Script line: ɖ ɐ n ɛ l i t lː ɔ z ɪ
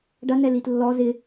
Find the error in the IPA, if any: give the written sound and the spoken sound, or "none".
none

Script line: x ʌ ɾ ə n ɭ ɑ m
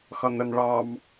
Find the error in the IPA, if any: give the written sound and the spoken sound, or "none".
ɾ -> n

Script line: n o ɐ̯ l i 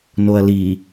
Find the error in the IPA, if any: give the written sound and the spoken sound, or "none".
none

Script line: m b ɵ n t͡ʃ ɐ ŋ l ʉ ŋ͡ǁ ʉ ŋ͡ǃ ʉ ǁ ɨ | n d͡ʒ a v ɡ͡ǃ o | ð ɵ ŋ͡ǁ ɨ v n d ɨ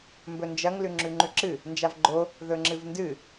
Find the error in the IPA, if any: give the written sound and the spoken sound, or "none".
t͡ʃ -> d͡ʒ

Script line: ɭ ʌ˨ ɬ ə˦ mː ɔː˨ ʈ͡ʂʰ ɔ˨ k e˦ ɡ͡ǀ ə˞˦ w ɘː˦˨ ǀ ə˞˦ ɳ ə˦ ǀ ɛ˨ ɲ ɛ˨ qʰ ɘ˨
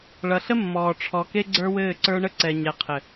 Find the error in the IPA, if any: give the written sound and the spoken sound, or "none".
none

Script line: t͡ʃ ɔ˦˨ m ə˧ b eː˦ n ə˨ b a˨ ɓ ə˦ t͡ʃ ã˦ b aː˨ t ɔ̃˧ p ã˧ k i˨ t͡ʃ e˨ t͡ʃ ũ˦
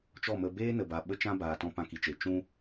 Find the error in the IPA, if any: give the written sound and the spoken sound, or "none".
none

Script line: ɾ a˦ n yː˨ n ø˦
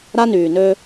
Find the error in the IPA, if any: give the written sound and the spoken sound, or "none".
none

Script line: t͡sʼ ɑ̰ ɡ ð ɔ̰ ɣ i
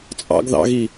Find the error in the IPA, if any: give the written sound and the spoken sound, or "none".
ɔ̰ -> ɑ̰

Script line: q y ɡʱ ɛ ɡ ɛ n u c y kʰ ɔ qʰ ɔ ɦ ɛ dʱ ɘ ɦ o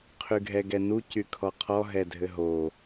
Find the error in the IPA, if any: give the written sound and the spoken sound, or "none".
q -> qʰ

